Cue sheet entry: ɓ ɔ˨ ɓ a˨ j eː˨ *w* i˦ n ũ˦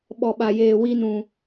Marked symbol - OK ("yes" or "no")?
yes